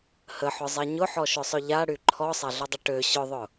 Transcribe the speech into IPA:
həħʊzˤɛ ɲʊħɔʃʏsˤʊ ʎaɽy ǃʰɔsˤaɮʊdˤʏ ʈø ɕʊðˤʊ

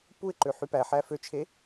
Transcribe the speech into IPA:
puɪ̯ǃø ħypæħæ føt͡ʃʰe

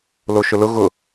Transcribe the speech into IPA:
loʃʊlʊ ɣʊ

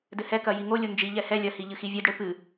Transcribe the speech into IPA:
dɘhɛkɐ jiŋolʲo nd͡ʒiʎɛ hɛ lʲɐhi ʎɨxivʲɘdɽɘ pɨ

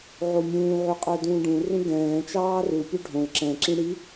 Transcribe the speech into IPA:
ʕomʲũː ʕʉqʼœdũːɖũ rũɡɛ̃ː t͡ʃɑːru pʲœɖʱõl ǁɛ̃ ǁĩɽi

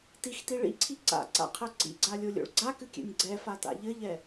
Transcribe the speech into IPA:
tixti ɭḭǀʰi ǀa̰ǀa̰qʰɛ ǀḭɡ͡ǀalʲolʲo̰ɭ ɡ͡ǀakɨkʲɛ̰nʲ ɡ͡ǀɛfata̰ ʎɘʎɛ

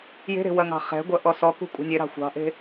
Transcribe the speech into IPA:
je̤ɾe̤ wɐŋɑ̤χɛ̤ɡʷɐ ʔɔsɔkṳ kʷʼɑ̤nʲeɾɑ̤ xʷɑ̤ʔe̤

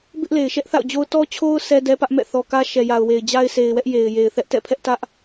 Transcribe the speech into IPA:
bɪ˦ʔle˨ɪ̯ʃɛ˦ʔ θa̰˦˨ʊ̯d͡ʑo˦ʊ̯ tɔ˦t͡ɕʰo˦ʊ̯ sɛ˦dɛ˦pä˦ʔ mɛ̰˦˨θɔ˨kä˦ ʃɛ˨ja˨ʊ̯we˨ɪ̯ d͡ʑa˦ɪ̯se˨ɪ̯wɛ˦ʔ je˨ɪ̯ je˨ɪ̯θɛ˦ʔ tɛ̰˦˨pʰɛ˦ʔtä˦ʔ

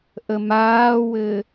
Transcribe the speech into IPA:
ʔəmaːwɘː

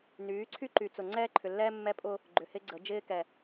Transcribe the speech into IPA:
nyː˨˦ǀʰy˦ǃy˨ t͡sʊ˨ŋ͡ǀɛː˦ǃʰʏ˨lːɛː˦ mːɛ˦pʼʊ˦ | ɡ͡ǃʏ˨hɪ˦ɡ͡ǀə˨˦ d͡ʒɪː˦kɛ˨

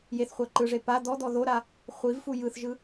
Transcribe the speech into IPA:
jeθχʷa ǃɯʐe pa d̪ɔd̪ɔ ðoɾa | χʷivfu jɯθʒɯ

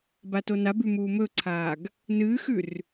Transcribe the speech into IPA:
batonabʉ muːmɵǀʰaːɡ | nɨːxʉr

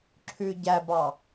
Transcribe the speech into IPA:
ǁʰʉ ɟæbɑ

